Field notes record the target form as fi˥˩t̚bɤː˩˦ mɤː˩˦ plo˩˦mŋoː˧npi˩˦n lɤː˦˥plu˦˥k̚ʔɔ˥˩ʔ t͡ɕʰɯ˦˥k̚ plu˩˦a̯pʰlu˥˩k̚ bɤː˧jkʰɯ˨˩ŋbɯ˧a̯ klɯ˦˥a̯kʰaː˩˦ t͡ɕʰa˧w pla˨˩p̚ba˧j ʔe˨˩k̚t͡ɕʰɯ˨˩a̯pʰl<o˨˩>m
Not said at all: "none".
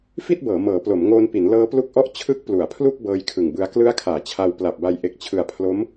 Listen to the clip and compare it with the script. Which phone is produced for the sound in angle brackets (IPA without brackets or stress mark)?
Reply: o˦˥